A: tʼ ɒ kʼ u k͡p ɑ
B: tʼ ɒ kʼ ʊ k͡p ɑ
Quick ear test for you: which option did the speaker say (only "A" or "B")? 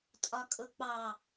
B